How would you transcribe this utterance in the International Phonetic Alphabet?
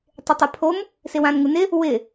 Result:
tˤ ɪ tˤ ɛ pʰ o m | s ɪ w ã n ŋ u n ɪ | w ɪ

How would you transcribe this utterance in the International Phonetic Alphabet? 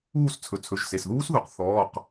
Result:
uː˦˨ s t͡sʰ ɵ˩˧˩ t͡sʰ ɵ˩˧˩ ʒ s e˩˧˩ s ð uː˦˥ s ð u˩˥ q θ ɔː˩˧˩ q

